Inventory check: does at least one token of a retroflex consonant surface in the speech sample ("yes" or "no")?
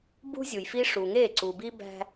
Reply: yes